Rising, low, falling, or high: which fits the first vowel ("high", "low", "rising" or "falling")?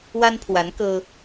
high